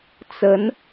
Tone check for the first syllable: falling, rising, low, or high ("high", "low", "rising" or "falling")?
rising